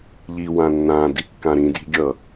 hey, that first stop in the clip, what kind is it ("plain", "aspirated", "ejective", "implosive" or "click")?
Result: plain